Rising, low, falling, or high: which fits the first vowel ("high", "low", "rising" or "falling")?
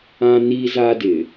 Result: high